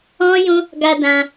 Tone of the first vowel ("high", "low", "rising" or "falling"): high